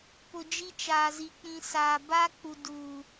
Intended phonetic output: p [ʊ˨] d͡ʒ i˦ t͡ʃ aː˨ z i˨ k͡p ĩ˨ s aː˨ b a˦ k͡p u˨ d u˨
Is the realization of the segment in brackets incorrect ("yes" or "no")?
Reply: no